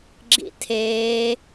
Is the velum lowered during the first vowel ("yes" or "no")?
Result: no